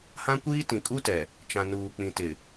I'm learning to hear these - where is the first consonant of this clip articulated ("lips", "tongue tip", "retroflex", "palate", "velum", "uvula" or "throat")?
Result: throat